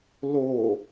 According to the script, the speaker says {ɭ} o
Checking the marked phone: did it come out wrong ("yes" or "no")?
yes